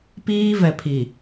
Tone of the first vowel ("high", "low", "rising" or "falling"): high